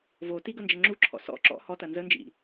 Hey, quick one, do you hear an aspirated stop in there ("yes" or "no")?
yes